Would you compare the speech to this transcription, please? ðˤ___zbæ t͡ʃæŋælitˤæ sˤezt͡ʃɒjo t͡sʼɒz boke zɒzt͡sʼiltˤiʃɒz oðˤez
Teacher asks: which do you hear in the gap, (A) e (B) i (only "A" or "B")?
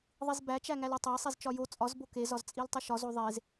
B